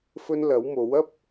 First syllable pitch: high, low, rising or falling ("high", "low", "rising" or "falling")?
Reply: high